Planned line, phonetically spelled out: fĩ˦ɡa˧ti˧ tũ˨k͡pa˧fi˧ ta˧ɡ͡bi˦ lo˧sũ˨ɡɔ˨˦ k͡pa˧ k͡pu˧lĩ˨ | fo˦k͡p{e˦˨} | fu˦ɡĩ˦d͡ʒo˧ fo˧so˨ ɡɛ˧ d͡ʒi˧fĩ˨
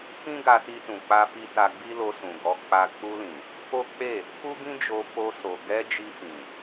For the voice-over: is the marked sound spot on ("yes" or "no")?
yes